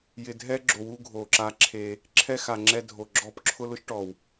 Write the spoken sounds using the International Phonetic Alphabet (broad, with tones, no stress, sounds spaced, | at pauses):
j ɪ˨ dʱ ɛ˦ ɡ͡ǁ o˨ w u˦ ɡʱ o˨ ǁ a˦ ǁʰ e˦ | ǁʰ ɛ˦ x a˨ ŋ͡ǁ ɛ˦ dʱ o˨ ɡ͡ǁ ɔ˦ p ǁʰ ʊ˦ l ʊ˦ ʃ ʈ ɔ˨ w